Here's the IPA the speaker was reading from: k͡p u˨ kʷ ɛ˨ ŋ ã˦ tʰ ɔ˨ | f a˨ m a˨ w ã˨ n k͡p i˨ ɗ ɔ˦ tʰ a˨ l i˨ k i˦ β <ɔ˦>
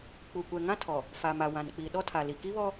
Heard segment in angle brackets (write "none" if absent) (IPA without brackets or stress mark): ɔ˦